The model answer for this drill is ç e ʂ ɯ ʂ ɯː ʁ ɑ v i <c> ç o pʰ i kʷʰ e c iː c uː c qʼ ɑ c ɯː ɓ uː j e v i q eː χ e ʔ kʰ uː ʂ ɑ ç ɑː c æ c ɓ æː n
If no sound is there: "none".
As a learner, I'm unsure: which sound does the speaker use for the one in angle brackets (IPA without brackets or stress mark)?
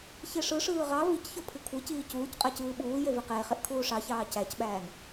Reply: c